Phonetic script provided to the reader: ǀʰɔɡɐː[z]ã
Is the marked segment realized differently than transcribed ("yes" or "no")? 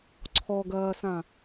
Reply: yes